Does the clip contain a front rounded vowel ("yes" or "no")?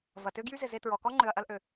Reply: yes